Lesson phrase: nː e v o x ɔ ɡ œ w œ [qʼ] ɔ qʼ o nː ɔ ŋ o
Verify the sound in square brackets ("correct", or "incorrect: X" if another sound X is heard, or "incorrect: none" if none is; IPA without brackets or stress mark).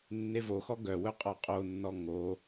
correct